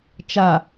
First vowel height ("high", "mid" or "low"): low